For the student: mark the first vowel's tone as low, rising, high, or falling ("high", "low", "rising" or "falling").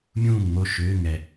falling